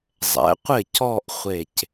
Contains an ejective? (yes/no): no